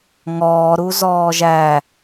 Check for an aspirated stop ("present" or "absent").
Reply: absent